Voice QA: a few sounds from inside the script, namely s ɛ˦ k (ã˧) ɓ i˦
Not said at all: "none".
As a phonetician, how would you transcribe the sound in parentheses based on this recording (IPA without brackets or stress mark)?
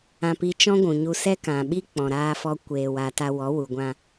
ã˨